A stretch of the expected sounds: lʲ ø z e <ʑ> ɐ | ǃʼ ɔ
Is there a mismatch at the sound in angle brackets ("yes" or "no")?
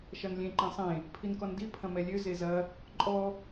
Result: yes